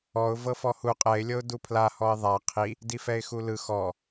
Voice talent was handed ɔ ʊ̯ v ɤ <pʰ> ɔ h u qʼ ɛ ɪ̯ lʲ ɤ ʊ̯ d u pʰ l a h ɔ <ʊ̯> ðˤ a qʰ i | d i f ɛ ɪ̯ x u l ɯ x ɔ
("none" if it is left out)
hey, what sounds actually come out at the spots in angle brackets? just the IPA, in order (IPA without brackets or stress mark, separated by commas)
f, ɪ̯